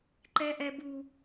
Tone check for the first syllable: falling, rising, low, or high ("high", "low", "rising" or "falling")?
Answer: high